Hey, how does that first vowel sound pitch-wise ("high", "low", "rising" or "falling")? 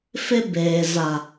high